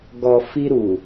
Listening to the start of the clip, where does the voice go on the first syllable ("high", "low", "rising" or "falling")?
low